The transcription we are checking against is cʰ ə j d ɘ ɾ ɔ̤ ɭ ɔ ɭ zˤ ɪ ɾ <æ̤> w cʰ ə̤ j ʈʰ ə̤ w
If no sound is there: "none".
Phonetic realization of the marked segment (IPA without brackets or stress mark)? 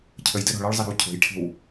ə̤